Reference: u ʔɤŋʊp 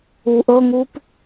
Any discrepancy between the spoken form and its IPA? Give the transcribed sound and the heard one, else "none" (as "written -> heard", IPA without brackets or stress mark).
ʊ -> u